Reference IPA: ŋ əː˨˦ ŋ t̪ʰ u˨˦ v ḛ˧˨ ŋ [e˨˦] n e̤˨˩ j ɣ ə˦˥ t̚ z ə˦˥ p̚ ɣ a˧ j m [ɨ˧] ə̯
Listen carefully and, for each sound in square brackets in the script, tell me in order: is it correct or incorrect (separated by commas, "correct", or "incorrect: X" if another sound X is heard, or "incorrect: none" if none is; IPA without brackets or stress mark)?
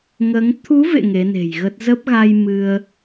correct, correct